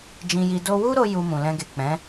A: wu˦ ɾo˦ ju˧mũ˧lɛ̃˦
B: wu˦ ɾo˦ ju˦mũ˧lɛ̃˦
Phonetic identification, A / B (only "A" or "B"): B